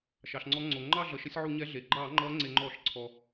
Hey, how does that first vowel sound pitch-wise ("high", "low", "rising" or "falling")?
low